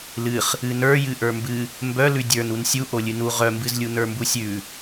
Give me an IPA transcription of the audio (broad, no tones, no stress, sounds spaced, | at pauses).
l ɨ χ | ɨ n ə˞ j ɨ ʔ ə˞ m b ɨ | m b œ l ʉ dʲ ə˞ n u n sʲ u ʔ o lʲ ɨ n u ʁ œ m b ɨ z lʲ u n ə˞ m b u sʲ ʉ